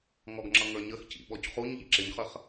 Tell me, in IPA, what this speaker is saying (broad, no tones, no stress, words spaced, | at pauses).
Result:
ŋɔɡŋ͡ǁʌŋə˞ɲəx cḭɓɔcχuɲ ʎḭǁɪɲχəχ